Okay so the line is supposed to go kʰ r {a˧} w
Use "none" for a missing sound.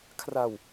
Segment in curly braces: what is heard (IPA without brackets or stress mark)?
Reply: a˧